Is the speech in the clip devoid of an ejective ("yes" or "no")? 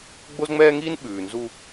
yes